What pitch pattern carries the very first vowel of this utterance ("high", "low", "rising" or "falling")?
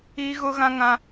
high